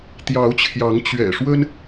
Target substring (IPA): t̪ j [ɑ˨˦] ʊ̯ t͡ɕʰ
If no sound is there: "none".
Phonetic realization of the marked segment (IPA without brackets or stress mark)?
ɑ˨˦